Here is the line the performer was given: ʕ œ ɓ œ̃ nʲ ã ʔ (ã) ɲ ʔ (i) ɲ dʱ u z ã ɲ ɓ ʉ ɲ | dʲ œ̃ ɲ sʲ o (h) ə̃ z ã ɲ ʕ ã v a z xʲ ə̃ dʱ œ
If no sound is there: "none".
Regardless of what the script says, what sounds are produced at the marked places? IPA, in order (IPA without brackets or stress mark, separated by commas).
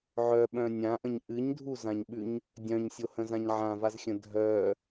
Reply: ə̃, ɨ, h